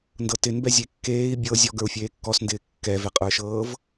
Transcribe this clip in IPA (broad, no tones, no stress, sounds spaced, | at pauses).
n d ɤ t ɪ n b ɛ zʲ e kː eː i̯ bʲ ɤ zʲ ɔ ɡ ə˞ u̯ fʲ eː kː ɔ s n d ɪː kː ɛ v ɛ qʼ ə˞ ʃ ɤː v